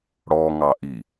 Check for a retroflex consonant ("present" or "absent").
present